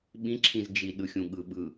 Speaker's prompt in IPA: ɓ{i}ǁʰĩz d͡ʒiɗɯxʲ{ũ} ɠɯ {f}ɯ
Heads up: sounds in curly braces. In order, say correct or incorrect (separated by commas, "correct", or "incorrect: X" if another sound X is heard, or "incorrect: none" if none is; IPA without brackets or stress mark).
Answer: incorrect: ĩ, correct, incorrect: ɓ